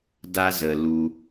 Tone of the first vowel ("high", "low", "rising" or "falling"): high